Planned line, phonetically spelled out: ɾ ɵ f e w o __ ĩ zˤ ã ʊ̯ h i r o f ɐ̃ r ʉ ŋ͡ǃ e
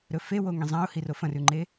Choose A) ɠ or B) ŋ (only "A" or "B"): B